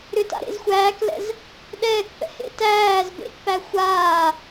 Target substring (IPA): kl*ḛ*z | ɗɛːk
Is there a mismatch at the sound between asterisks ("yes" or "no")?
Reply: yes